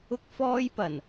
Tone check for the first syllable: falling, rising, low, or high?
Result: high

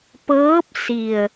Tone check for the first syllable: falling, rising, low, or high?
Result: rising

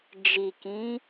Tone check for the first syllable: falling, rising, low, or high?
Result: low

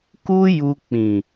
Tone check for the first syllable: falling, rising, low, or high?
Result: high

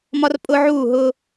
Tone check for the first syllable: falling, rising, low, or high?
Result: high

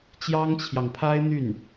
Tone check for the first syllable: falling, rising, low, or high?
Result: high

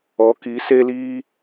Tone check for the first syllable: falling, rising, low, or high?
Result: rising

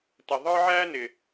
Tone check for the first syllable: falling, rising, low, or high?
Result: low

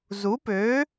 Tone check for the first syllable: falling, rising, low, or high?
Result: rising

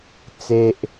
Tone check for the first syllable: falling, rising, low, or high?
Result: high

